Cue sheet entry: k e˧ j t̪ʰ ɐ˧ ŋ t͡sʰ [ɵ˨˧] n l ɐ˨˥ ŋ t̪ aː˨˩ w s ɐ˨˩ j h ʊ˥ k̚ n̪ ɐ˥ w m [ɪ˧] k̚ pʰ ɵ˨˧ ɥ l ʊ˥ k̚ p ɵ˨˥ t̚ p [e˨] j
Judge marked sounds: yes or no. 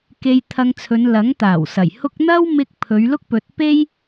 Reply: yes, yes, no

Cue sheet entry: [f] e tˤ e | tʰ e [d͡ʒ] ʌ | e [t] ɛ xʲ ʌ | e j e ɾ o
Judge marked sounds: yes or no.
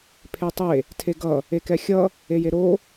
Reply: no, no, no

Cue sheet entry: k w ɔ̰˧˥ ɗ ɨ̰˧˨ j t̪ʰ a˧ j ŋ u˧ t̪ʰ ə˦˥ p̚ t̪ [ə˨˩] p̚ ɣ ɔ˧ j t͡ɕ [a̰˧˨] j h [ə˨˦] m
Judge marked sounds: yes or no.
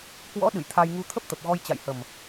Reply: yes, yes, no

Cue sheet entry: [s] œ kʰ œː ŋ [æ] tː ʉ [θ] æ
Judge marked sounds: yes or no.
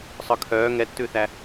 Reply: no, no, yes

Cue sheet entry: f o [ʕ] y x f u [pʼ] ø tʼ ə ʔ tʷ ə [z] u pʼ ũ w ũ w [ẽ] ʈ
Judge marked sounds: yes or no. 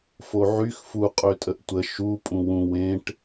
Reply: yes, no, no, yes

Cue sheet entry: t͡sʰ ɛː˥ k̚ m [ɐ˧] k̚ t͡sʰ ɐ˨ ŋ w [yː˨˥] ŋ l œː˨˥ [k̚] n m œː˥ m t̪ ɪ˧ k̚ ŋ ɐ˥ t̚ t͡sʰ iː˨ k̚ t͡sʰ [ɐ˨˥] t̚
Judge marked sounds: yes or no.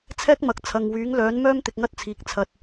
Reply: no, yes, no, no

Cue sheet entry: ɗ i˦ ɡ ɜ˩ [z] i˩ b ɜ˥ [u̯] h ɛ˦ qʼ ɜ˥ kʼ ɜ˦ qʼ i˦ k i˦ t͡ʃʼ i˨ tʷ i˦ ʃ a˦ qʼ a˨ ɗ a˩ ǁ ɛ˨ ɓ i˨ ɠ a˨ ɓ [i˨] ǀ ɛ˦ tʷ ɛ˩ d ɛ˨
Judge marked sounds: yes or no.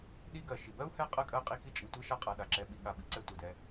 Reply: no, yes, no

